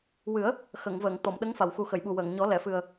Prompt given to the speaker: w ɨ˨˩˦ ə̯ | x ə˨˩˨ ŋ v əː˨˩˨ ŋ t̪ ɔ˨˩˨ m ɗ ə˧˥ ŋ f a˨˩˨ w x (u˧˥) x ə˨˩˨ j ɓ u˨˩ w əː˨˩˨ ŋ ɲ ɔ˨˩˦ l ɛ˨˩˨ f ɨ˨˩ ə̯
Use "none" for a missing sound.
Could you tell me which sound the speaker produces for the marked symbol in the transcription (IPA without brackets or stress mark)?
u˨˩